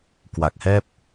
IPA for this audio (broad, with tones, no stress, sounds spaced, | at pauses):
k w a˨˩ k̚ h ɛː˥˩ p̚